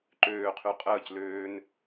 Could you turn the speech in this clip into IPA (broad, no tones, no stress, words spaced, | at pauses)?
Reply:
ǃøːqʰy qʼəːcløːn